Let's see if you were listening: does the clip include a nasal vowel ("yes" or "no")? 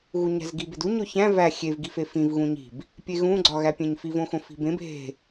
yes